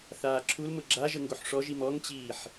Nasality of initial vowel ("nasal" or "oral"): oral